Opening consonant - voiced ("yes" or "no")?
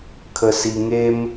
no